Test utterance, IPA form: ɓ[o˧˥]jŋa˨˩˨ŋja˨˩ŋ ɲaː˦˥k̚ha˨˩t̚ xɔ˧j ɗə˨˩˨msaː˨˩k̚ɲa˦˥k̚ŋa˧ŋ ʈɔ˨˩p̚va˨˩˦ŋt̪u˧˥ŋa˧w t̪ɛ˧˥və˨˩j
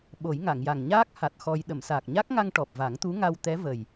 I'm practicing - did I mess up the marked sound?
yes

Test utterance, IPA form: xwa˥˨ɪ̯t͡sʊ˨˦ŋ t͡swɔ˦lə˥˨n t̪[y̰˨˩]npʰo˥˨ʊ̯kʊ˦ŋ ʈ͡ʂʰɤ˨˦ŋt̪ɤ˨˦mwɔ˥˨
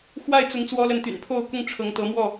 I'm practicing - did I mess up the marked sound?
no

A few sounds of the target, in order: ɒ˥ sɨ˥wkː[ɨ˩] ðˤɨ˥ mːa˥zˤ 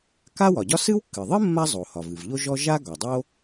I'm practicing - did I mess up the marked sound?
no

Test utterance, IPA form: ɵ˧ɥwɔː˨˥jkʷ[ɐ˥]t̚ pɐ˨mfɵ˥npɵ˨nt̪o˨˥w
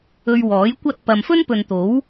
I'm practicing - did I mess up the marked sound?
no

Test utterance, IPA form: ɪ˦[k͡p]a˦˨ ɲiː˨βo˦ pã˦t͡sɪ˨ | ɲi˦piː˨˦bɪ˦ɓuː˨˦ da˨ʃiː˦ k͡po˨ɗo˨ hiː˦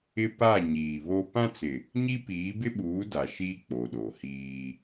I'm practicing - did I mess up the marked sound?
yes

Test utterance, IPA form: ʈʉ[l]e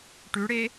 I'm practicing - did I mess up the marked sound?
yes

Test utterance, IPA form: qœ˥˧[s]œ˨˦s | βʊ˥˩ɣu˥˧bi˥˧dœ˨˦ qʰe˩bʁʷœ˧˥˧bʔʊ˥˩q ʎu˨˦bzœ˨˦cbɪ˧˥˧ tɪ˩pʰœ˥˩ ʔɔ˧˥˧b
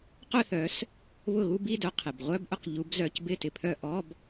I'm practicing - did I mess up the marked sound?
yes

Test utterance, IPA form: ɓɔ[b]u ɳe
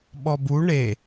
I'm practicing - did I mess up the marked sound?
no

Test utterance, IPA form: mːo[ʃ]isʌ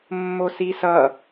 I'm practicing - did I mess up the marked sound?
yes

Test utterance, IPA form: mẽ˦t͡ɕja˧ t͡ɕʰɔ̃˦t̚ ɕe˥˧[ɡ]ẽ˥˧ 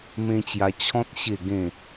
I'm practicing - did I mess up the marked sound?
no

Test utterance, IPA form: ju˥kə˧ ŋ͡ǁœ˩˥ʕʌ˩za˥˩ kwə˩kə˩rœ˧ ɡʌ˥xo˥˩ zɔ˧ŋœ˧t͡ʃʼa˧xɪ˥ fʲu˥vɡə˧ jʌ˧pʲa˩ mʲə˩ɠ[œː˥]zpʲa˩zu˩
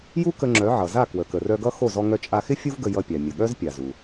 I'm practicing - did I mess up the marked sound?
yes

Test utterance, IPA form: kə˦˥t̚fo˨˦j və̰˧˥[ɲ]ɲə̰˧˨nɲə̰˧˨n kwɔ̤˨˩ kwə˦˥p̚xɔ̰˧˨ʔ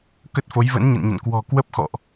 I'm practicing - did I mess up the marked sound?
yes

